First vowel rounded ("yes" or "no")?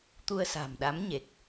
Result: yes